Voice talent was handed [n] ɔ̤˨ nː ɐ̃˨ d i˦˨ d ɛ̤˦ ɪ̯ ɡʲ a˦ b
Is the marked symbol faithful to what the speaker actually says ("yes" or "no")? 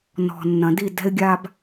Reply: yes